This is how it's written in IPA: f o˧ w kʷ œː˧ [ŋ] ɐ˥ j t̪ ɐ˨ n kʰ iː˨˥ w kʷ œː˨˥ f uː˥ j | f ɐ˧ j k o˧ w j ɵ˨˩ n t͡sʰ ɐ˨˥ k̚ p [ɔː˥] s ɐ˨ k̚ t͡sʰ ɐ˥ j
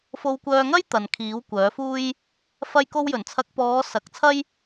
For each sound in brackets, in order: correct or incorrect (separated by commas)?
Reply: correct, incorrect